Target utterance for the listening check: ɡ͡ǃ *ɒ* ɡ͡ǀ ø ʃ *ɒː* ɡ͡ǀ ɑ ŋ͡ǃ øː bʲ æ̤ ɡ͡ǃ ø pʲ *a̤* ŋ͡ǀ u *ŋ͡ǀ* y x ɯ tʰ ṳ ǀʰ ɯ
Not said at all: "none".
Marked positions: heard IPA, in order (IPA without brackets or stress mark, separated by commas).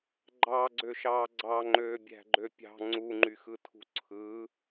ɑ, ɑː, ɑ̤, ŋ͡ǃ